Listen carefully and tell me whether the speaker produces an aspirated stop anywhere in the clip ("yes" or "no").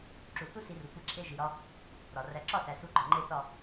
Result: yes